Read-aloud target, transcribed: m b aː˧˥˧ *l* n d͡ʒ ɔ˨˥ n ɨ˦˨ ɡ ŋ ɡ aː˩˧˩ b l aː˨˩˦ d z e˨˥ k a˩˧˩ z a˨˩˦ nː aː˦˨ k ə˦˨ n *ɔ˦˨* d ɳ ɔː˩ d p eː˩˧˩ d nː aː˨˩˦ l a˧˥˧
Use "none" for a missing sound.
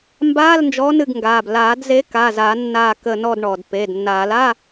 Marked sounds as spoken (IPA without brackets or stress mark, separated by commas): l, ɔ˦˨